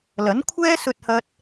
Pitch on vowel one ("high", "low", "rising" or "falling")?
rising